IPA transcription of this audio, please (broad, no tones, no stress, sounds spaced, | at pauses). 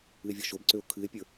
ɨ e̯ vʲ ɔ ʃ o b ǀ ø o̯ kʰ ɨ e̯ pʲ ə˞